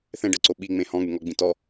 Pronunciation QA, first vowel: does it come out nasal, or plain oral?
nasal